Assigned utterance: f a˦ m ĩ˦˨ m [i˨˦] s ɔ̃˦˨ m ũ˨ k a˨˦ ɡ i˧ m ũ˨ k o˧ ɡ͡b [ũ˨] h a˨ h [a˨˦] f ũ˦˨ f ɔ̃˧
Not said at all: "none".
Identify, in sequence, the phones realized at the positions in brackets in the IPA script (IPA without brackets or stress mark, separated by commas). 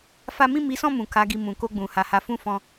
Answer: i˨˦, ũ˨, a˨˦